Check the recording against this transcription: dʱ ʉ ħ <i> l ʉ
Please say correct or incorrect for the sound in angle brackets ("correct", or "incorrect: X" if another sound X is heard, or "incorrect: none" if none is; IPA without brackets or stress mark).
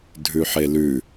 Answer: incorrect: e